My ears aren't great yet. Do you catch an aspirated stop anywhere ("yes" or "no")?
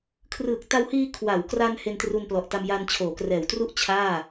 yes